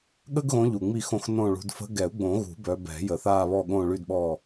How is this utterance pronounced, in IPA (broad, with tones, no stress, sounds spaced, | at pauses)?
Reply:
ɠ ə˦ ɡ ɣ õ˨˦ ʎ u˨˩ ŋ͡m i˦˨ x õ˦˨ x n õ˦˨ ɭ ṳ˨˦ d f ə̤˨˦ ɡ ɛ˨˩˦ u̯ ɡ͡b õ˨˩˦ ɣ ṳ˨˩˦ b œ˨˦ b ɛ̤˨˩˦ j ə˨˩ θ aː˦˨ β ɔ˦˨ ɠ õ˦˨ ɭ y˦˨ d ɓ ɔ˦˨